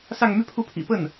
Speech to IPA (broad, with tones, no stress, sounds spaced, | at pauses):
s ɑ˥˧ ŋ m y˥˧ pʰ u˥˩ pʰ ḭ˨˩ p ə˥˩ n